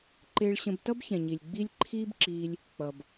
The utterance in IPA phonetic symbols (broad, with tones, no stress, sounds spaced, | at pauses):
ǃ ɪː˧ ɭ ɕ ə̃˧ b t ʌ˦ b ç ɛ̃˨ ɲ i˨ lʲ ɡ͡b i˦ lʲ ǃʰ iː˦ b ǁ iː˧ lʲ | k͡p ʌ˨ b